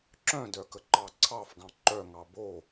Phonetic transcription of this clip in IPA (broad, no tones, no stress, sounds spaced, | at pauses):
ǁ œ̃ d œ k ə ǃ ɑ ǀʰ ɑ f ɡ ɑ̃ ǃ œ ŋ ɑ b o